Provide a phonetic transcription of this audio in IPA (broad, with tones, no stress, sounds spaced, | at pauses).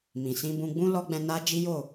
m ĩ˨ s ĩ˧ b ũ˧ ɡ͡b ũ˧ l ɔ˧ ɡ͡b ɛ̃˧ n a˦ d͡ʒ i˦ j o˦˨